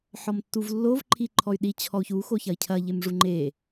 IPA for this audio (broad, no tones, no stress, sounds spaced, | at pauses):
ħ ɔ m tː u v lː o v ǃʰ i ǃʰ ɔ y̯ ɗ i t͡ɕʰ ɔ u̯ ç u x o ç ɐ i̯ cʰ ɐ ʎ e m ʐ u ŋ͡ǃ e